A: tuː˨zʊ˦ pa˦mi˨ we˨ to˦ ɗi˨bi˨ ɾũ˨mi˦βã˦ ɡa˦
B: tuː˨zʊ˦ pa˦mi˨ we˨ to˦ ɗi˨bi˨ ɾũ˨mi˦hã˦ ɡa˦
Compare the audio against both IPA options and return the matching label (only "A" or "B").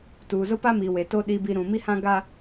B